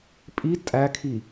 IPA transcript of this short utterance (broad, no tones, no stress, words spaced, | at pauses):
pʼi tʼækʰi